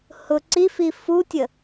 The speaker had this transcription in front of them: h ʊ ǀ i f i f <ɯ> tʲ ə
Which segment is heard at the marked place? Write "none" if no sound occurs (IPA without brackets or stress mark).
u